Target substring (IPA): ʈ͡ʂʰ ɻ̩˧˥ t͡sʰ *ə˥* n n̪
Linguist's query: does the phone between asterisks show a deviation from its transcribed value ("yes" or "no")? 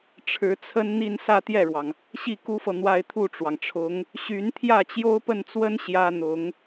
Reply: no